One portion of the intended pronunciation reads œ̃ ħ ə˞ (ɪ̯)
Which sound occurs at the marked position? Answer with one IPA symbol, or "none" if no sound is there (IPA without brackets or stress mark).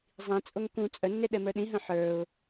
ʊ̯